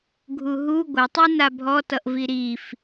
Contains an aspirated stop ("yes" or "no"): no